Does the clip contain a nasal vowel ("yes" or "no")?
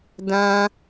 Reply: yes